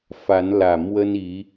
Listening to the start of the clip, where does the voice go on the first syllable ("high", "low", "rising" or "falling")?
rising